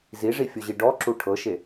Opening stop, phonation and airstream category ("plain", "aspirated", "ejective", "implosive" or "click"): plain